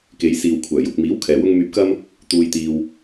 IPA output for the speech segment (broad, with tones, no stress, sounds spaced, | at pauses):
k e˨˧ j s iː˨ w kʷʰ œː˨˩ j ʊ˨ k̚ m iː˨˥ w kʰ ɛː˨ w ʊ˥ ŋ m yː˧ p̚ k ɐ˥ m | t̪ uː˧ j t̪ iː˧ w